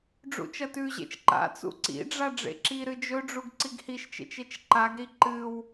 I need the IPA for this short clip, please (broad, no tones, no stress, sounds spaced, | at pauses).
ɖ͡ʐ ṵ t͡ʃ ɐ t ʉ ʑ ḛ t͡ʃ ǃ a̰ t͡s ṵ ǀ ḭ ɖ͡ʐ a ɖ͡ʐ ḛ ǁ i ɾ ɨ d͡ʒ ɵ ɖ͡ʐ u ɡ ǀ i ɡ h i ʃ t͡ʃ ḛ t͡ʃ e t͡ʃ ǃ a ɡ ɾ i ǃ ɨ w